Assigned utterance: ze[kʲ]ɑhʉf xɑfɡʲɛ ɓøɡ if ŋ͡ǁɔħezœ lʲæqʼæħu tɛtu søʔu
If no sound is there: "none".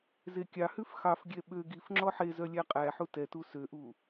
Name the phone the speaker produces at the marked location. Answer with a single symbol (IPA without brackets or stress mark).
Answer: kʲ